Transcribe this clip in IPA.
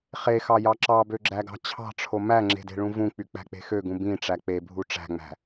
χ e x ɑ j ɑ ǁ ɑ b ø ɡ͡ǁ æ ɡ ɑ̤ t͡ɕʰ ɑ̤ ʈ͡ʂʰ o m æ ŋ͡ǁ e̤ d e̤ ɭ ũ v ũ k͡p y k͡p æ̤ k͡p e̤ x ø ɡ ũ b ĩ ʈ͡ʂ æ k͡p e bʱ u ʈ͡ʂ æ̤ ŋ͡m æ̤

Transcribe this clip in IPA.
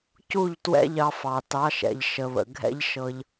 c u˦˨ ʎ t w ɛ̰˦ ʎ ɑ˧ f ɑ˨ t ɑ˨˦ ʃ ɛ̰˨ ʎ ʃ ə˨ β ə̰˨ ɡʱ ɛ̰˦ ʎ ʃ ɤ˧ ʎ

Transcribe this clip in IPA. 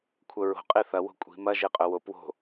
kʷʰ œ ɹ o̤ qʼ e θ ɐ w o̤ kʷʼ i̤ m ɐ ʒ e qʼ œ w o p w o̤

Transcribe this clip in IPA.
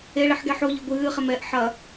e ɭ i ħ ɡ ɛ ħ o ʎ ɘ ɡʷ ɨː χ e m ɛ ʔ ħ ɐ

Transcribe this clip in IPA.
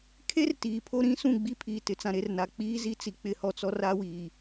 kʰ e˦ r t iː˨ pʰ o˦ ɾ ĩ˦ s ũ˦˨ ɡ͡b i˦ pʰ iː˨ t ɪ˨ t͡s ã˨ ɾ e˨ r n a˨ k͡p iː˦ z i˦ t͡s i˨ k͡p ɪ˦˨ h ɔ˦ t͡s ɔ˦ r a˦ w iː˨

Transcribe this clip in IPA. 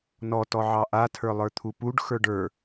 n ɔ t ɔ ʕ ɑ ʔ a tʰ ə˞ lˠ ə˞ t̪ʰ u p u ɖ x ə˞ ɖ ə˞

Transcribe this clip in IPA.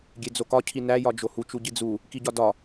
ɡʲ e d͡z o k ɒ cʰ i n æ j ɒ d͡ʒ o h u t͡ʃ u ɟ i d͡z u | k i ɟ ɒ d ɒ

